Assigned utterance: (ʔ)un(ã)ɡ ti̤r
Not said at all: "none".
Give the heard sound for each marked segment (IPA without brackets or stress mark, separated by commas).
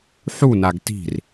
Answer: ħ, a